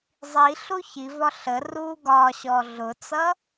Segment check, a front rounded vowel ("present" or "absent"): absent